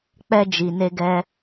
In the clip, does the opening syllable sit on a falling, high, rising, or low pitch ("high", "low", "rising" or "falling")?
high